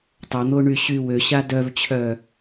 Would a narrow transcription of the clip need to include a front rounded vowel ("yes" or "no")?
yes